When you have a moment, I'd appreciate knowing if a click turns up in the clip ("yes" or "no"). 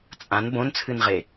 no